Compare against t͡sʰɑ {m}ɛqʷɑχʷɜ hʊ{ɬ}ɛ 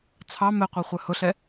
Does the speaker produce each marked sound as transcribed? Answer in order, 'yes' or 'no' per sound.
yes, yes

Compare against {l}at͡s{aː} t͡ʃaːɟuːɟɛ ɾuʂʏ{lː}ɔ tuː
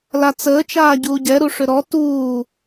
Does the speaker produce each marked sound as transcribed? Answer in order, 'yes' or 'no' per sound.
yes, no, no

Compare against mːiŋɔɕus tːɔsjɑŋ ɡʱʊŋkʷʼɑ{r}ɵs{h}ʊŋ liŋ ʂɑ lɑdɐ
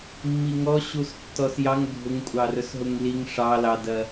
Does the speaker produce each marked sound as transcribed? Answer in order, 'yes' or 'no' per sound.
yes, no

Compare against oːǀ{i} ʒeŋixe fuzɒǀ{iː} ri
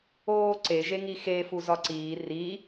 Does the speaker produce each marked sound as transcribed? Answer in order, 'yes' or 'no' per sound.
no, yes

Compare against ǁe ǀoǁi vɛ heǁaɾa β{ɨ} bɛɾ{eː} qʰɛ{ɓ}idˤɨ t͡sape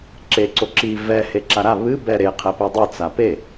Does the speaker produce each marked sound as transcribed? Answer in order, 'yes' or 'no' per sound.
yes, no, no

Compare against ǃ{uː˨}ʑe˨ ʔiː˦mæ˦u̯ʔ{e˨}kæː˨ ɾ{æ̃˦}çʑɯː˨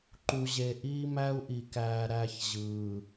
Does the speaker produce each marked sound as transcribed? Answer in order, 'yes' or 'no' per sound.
no, no, no

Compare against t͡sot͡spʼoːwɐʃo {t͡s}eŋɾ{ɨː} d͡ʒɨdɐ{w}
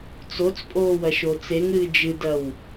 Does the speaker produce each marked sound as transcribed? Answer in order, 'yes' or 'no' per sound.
yes, yes, yes

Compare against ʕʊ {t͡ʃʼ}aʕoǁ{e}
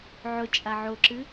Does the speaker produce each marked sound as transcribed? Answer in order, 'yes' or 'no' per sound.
yes, no

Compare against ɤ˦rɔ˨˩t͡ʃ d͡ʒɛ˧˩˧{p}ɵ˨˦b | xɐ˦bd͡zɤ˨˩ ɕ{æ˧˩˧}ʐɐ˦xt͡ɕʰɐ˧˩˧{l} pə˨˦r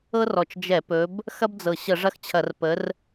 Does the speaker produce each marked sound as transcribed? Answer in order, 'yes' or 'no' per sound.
yes, no, no

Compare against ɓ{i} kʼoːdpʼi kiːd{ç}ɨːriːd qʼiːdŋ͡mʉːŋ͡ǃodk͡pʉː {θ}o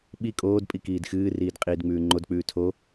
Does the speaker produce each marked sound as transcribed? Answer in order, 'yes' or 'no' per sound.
yes, no, no

